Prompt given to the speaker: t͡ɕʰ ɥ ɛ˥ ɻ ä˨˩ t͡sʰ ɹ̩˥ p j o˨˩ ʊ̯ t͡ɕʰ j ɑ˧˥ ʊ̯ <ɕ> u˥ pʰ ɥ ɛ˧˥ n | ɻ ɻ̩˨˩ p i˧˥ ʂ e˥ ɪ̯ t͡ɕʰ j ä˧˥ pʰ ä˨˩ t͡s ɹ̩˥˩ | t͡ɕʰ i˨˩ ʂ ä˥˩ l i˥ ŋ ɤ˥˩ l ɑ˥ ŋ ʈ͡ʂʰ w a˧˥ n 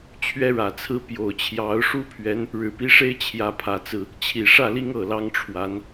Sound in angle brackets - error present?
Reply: yes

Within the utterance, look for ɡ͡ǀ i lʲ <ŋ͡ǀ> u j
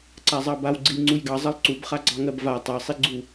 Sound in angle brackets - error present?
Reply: no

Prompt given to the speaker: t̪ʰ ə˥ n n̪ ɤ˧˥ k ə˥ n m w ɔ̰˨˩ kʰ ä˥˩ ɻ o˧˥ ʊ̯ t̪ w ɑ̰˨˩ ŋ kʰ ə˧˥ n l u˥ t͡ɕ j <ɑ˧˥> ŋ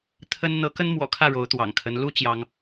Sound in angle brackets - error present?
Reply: yes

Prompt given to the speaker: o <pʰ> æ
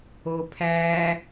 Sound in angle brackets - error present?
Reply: no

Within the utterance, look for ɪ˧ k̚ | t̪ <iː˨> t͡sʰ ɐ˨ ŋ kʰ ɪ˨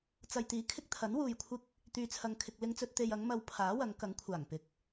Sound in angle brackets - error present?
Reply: yes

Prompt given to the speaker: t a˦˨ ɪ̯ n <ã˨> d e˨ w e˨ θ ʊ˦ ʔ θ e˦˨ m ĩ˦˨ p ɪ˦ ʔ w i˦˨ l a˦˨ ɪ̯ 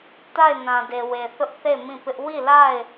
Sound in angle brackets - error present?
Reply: no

